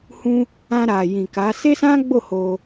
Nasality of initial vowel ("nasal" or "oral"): nasal